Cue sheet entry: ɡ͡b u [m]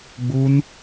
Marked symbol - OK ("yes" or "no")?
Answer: no